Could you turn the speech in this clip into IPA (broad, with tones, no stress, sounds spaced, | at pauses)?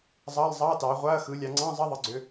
zˤ ɑ˧˥˧ lˠ zˤ ɑ˧˥˧ t ɑ˩˧ ʁʷ a˧˥˧ ɐ̯ x ɯ˩˧ lʲ ɑ˩˧ ŋ͡ǀ ɑ̃˧˥˧ zˤ ə˧˥˧ ðˤ ɯ˩˧ ɡ͡ǀ ø˩˧